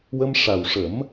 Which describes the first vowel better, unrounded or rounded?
unrounded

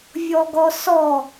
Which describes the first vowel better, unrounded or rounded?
rounded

